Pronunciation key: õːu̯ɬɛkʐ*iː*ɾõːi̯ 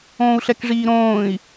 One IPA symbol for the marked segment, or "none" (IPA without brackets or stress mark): iː